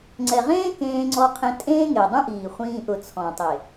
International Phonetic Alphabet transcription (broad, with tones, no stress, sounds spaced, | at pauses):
ŋ͡ǀ ɛ˨ ʁ ẽː˦ k ẽː˧ ŋ͡ǀ ɔ˧ qʰ ẽ˧ tʼ ẽː˦ ŋ e˨ dˤ ũ˦ ʔ iː˨ χʷ ĩː˧ ʔ ʊ˨ t͡sʰ ɔ̃˨ tˤ e˨